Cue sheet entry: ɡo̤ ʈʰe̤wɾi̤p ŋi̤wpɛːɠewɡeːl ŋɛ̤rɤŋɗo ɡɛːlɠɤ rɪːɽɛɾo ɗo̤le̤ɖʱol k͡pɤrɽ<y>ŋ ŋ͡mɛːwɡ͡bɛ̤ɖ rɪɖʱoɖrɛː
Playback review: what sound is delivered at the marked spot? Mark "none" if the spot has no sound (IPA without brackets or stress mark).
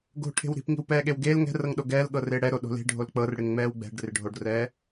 ɪ